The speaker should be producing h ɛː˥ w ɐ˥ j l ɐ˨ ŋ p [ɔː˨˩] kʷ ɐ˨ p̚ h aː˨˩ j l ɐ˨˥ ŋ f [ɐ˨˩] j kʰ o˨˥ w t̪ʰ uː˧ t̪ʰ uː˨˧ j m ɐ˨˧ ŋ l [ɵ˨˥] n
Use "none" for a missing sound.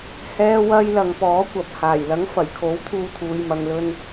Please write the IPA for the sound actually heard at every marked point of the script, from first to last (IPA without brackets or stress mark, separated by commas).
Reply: ɔː˨˥, ɐ˨˩, ɵ˧